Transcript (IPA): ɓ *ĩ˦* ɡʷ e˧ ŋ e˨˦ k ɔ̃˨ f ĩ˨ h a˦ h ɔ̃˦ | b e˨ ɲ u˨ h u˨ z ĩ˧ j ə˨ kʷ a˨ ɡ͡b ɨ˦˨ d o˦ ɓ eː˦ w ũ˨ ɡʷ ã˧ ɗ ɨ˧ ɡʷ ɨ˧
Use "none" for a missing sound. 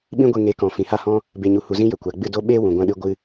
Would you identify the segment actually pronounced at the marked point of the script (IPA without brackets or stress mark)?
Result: ĩ˦